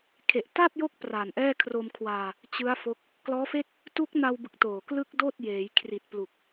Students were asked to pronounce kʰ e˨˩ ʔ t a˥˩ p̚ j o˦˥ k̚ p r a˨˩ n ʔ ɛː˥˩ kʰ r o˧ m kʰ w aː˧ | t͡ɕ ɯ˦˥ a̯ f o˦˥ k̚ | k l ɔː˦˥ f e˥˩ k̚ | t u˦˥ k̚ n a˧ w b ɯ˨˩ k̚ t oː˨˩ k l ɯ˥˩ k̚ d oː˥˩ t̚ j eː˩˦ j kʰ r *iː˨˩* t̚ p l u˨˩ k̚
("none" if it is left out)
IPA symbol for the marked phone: i˨˩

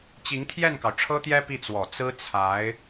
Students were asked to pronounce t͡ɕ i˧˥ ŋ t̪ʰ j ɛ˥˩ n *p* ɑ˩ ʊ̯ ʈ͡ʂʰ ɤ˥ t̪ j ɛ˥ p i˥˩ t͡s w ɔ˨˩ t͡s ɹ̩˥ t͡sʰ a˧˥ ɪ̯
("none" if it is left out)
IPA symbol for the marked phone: k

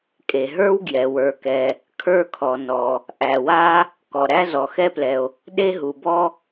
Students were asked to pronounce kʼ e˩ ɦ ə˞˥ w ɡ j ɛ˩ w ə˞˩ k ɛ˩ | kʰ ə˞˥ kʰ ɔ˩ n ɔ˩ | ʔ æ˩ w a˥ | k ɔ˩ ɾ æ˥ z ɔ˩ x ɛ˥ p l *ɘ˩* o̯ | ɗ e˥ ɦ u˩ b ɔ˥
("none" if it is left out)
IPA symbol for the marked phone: ɛ˩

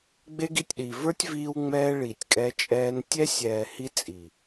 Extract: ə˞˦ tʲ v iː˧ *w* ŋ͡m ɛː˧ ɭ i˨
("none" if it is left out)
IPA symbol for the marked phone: w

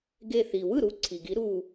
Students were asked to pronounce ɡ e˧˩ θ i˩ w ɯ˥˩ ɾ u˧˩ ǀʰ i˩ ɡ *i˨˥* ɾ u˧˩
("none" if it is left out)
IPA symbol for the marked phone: i˨˥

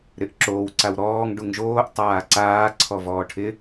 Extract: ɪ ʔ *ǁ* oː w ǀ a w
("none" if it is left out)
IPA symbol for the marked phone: ǁ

